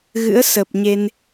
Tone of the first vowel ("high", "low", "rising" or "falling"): rising